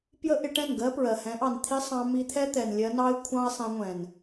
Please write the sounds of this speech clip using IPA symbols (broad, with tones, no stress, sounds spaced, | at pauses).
p j ə˦ ʔ ɪ˧ ʈ ɛ̃˦˨ n ɡ ɜ˦ p ɹ ɜ˨ h ɛ̃˨˦ ʔ ɑ˨ n t̪ʰ i˦ sˤ ɑ̃˧ m i˧ t̪ʰ ɛ˦ t̪ ɛ˨ n lʲ ɜ˧ n ɑ˦ ɪ̯ kʷʰ ɑ̃˦ ɪ̯ sˤ ɛ̃˧ ŋʷ ɛ̃˨ n